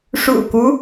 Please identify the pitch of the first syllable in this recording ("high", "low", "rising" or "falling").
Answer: low